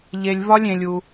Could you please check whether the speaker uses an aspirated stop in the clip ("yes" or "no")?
no